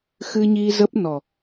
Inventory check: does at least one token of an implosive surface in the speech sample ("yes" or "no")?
no